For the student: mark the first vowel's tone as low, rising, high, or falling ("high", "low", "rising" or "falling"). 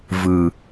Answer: low